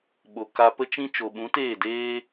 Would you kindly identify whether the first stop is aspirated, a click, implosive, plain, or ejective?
implosive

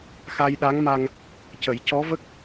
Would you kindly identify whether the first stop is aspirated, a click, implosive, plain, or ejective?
implosive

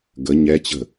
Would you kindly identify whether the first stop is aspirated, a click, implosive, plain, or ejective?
plain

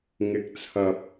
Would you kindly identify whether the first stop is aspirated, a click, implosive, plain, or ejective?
plain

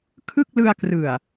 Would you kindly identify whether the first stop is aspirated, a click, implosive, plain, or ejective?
aspirated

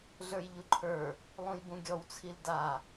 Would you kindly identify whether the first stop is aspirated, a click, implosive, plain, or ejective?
click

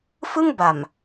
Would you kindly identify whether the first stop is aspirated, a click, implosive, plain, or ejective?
plain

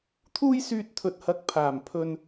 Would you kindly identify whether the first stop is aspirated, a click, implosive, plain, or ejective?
aspirated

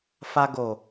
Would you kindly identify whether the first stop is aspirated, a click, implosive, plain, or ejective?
plain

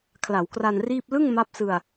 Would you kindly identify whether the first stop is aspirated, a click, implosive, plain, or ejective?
aspirated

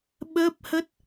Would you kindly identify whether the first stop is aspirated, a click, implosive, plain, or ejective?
implosive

